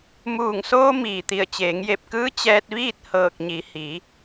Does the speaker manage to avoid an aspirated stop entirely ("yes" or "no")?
yes